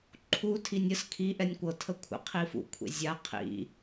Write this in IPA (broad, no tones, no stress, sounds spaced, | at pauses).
ǃʰ u tʰ i nʲ ə s kʰ i ʔ ɛ nʲ kʷ ɤ tʰ ə kʷʰ ə̰ qʰ i f ṵ kʷʰ ḛ zʲ a qʰ ḭ